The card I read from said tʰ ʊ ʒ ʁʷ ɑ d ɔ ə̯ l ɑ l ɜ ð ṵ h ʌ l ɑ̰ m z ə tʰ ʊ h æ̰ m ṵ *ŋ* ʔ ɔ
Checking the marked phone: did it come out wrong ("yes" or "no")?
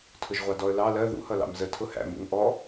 no